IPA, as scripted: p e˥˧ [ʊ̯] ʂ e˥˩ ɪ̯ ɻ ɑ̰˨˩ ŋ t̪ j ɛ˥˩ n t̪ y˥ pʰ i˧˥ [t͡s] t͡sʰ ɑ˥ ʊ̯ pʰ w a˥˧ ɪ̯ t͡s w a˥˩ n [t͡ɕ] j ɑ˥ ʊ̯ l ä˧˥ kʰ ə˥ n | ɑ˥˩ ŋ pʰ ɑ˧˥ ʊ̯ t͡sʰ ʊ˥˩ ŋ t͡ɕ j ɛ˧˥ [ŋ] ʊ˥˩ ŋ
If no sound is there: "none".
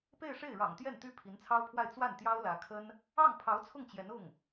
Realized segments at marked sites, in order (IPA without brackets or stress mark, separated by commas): ɪ̯, n, t̪, n